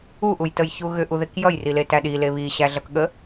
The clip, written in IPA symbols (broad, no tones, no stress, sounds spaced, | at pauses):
u ʔ u j t ə j ç u ɣ ʏ ʔ u ð e k j ʌ j r i l e t æ ɗ i l e β i ɕ æ ɮ ʌ k ɠ ə